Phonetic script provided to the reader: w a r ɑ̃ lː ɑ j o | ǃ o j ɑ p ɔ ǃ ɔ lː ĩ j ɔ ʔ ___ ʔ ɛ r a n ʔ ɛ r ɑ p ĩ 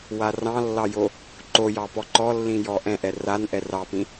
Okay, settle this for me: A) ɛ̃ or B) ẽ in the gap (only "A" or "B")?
A